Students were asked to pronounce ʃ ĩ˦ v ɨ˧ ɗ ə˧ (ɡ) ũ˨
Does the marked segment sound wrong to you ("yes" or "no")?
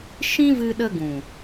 no